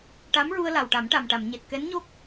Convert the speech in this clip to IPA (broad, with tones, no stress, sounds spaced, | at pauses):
ʈ a˧˥ m ɹ u˧ ə̯ l a˨˩ w ʈ a˨˩˦ m ʈ a˨˩ m ʈ a˨˩˨ m ɲ e˨˩ t̚ k ɛ˧˥ n ɲ o˦˥ k̚